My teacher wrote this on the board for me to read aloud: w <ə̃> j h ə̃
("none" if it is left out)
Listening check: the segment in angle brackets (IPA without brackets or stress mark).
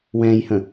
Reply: ɛ̃